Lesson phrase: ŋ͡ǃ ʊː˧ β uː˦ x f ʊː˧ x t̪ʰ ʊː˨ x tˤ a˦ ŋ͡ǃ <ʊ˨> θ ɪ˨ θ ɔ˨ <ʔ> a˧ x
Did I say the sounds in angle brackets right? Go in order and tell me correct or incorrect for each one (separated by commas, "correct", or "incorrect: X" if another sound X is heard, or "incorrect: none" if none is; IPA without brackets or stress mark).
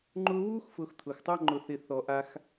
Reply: correct, correct